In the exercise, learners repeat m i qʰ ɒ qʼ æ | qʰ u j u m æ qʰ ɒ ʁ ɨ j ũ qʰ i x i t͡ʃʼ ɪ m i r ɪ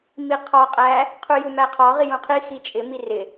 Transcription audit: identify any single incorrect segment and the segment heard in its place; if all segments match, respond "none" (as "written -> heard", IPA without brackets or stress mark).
ɨ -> i